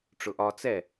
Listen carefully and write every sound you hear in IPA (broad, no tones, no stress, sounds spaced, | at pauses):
ʈ͡ʂ ʊ ʔ ɒ t͡s ɛ